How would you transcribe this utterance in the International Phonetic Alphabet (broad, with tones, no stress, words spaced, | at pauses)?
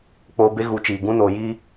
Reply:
k͡poː˧be˦ɣu˨˦ t͡ʃiː˨ ɡũ˧noː˨ji˧